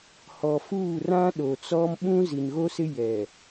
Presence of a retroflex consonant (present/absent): absent